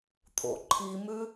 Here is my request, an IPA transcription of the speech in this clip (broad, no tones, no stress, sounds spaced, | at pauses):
t̪ʰ o̰ ǃʰ i m ʉ